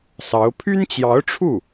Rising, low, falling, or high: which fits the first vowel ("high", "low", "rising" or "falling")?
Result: rising